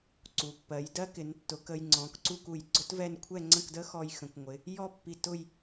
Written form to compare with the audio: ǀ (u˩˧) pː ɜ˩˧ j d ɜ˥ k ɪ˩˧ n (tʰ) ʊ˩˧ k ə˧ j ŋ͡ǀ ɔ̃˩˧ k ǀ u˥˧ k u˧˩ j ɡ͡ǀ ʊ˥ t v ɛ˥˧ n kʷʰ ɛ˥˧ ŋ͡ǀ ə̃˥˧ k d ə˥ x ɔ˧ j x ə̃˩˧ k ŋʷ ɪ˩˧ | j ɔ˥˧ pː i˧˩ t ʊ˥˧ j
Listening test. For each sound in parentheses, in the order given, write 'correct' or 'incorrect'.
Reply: correct, incorrect: tː

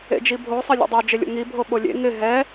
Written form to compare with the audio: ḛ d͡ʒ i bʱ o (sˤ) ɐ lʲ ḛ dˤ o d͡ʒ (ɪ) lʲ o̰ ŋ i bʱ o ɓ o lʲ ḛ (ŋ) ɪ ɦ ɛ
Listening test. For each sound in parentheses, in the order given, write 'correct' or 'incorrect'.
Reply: correct, correct, correct

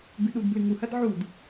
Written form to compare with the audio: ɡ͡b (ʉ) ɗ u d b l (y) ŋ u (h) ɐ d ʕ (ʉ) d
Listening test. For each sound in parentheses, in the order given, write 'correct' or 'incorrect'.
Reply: correct, incorrect: ɨ, correct, incorrect: u

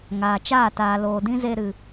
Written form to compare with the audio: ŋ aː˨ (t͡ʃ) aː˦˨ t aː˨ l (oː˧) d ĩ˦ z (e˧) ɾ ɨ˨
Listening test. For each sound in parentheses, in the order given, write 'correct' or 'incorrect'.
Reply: correct, incorrect: oː˨, correct

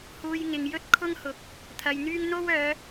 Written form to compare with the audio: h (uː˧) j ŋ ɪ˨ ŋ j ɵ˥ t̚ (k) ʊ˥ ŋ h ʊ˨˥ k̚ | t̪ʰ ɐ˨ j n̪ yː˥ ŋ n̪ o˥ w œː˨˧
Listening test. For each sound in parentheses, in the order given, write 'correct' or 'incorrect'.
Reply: incorrect: uː˨, incorrect: kʰ

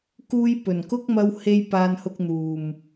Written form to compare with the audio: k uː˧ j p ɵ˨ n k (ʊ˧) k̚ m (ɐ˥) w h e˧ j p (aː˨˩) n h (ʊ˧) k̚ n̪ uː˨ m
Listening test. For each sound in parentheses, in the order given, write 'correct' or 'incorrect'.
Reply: incorrect: ʊ˥, incorrect: ɐ˧, incorrect: aː˧, correct

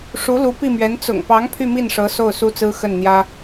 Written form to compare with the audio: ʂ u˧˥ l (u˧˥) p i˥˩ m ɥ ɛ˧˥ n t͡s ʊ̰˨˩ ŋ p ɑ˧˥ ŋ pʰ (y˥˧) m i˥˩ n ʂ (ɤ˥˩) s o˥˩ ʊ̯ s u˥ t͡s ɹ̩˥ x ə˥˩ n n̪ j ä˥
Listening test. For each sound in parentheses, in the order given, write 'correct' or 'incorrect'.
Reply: correct, correct, incorrect: ɤ˧˥

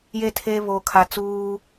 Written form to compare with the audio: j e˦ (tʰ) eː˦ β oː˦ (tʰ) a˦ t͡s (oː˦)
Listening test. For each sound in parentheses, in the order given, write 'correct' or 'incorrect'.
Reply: correct, incorrect: kʰ, incorrect: uː˦

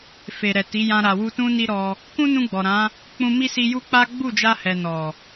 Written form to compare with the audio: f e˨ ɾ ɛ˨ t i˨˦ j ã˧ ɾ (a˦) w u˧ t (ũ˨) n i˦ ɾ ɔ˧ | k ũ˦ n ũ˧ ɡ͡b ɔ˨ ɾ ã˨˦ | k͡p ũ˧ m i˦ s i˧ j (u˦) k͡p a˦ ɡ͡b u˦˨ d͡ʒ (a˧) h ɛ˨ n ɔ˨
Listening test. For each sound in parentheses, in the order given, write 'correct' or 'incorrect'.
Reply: incorrect: a˨, incorrect: ũ˦, correct, correct

